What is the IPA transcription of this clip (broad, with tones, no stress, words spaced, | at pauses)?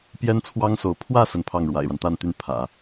pjɛ˥nt͡sʰwɑ˥ŋso˧˥ʊ̯ pʰwä˥˧ sə˥˧npʰɑ˥˩ŋ ɻwa̰˨˩ɪ̯ɻa˦n t̪a˥˧nt̪y˥˩n pʰä̰˨˩˦